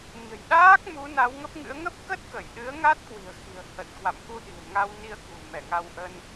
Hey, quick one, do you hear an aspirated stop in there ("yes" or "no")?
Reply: no